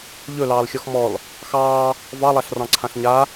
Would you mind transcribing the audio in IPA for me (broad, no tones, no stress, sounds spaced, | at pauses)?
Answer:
ʎ ɵ l ɑː l xʲ ɔ x m ɔ l | x ɑː | v ɑ lˠ a ɬ r ɑ̃ ǀʰ ã ɬ ɲ a